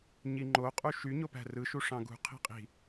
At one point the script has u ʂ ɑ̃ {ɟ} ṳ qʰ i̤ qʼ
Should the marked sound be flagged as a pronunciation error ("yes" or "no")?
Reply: yes